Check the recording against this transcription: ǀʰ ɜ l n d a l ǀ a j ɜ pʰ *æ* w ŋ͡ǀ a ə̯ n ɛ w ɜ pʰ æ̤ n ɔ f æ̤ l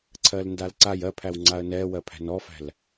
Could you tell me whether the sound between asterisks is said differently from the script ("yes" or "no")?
no